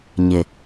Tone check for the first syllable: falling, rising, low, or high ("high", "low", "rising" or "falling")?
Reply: low